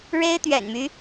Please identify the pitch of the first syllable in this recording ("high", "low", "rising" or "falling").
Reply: high